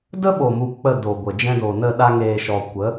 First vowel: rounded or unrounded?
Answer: unrounded